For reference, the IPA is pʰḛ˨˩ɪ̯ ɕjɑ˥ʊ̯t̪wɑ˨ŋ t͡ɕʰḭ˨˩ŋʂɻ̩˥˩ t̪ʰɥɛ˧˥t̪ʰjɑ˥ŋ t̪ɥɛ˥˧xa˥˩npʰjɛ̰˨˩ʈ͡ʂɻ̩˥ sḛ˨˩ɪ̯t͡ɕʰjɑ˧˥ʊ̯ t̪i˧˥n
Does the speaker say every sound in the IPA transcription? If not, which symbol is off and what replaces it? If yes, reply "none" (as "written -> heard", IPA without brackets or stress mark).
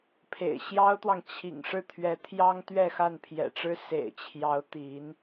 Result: none